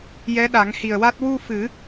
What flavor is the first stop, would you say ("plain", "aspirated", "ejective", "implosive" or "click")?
implosive